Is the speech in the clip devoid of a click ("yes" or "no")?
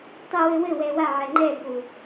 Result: no